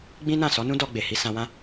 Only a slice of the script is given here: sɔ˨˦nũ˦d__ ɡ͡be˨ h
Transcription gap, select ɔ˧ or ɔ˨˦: ɔ˧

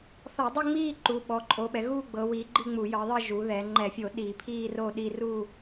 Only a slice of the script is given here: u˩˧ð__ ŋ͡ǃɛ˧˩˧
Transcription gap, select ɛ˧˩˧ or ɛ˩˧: ɛ˩˧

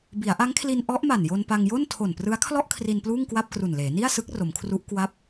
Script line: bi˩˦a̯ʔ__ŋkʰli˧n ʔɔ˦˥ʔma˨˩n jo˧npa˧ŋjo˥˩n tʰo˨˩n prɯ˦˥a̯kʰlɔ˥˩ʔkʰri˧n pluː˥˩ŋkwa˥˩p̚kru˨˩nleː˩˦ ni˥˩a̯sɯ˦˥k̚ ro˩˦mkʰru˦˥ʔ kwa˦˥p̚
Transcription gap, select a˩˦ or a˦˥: a˦˥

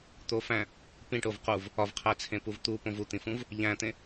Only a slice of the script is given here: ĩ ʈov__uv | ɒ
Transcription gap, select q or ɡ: q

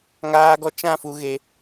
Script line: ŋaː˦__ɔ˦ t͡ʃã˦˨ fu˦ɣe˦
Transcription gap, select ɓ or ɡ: ɡ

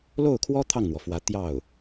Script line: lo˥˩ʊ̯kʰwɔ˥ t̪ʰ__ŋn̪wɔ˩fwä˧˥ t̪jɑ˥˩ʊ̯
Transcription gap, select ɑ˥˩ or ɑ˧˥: ɑ˥˩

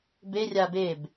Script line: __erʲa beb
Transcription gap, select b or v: b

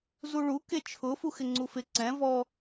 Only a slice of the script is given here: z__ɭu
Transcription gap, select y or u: u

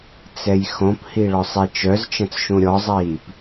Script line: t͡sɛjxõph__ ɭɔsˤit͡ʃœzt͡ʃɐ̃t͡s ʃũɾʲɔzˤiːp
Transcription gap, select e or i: i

